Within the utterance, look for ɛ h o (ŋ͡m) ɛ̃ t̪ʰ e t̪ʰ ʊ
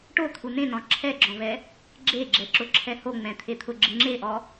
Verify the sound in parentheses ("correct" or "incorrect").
correct